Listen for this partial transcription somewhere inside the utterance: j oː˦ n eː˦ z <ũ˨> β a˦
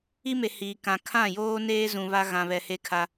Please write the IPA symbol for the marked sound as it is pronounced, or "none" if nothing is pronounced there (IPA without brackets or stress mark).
ũ˨